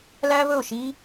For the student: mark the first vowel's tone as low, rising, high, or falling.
high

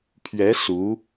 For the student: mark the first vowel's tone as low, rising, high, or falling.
rising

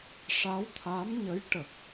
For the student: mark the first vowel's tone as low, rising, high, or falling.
rising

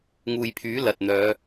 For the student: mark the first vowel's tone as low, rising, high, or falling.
low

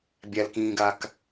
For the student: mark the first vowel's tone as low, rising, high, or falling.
low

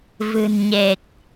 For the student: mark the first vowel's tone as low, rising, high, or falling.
low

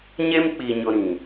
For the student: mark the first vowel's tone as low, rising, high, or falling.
high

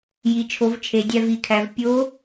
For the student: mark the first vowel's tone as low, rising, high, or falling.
low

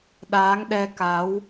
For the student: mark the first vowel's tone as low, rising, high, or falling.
rising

